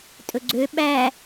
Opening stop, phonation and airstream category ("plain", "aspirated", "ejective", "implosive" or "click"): ejective